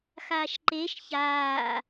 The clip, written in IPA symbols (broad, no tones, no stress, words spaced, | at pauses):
xaːʃǃeʃ çaː